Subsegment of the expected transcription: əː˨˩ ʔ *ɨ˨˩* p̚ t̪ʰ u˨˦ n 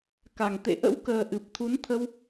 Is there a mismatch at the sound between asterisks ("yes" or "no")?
no